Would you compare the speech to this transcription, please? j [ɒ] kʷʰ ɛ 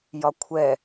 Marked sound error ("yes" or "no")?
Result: no